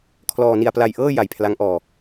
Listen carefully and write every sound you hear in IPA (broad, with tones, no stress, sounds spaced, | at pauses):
kʰ l ɔː˧ n i˧ a̯ p l a˧ j ʔ ɤː˥˩ j a˨˩ j pʰ l a˦˥ ŋ ʔ ɔː˧